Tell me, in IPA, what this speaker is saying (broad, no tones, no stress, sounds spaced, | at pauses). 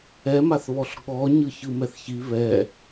ɛ m a θ β ɔ ɬ ɠ ɔ ɲ ɯ ç ɯ m ɛ θ ç i β ɛ